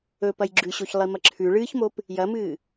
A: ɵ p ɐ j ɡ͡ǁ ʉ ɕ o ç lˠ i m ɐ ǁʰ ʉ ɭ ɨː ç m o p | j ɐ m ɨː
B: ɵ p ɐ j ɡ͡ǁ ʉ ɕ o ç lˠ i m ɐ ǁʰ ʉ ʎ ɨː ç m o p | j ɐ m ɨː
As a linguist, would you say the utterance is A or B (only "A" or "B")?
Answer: A